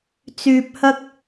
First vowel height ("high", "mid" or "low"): high